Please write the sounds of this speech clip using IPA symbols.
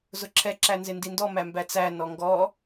zʊǁʰɛ ǁænzɪndindɔ mæmbæt͡sæ nɔŋɡɔ

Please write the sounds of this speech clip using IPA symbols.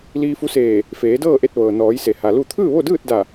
liː˧fu˧˥seː˧˩ | feː˩˧dɤː˥˨ʔe˧t̚ ʋɤː˩nɔː˩˧jse˩ ha˩lu˥˨ t̪ʰɯː˥˨ʋo˥˨dɯː˥˨t̚da˧˩

